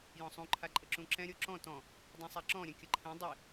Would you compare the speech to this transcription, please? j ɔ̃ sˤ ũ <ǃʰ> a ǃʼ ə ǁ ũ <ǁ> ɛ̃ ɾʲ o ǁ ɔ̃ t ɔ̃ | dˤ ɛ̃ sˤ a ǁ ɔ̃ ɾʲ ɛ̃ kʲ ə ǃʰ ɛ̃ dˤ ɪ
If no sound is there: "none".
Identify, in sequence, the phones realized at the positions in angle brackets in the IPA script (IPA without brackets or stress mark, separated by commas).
ǃʰ, ǁ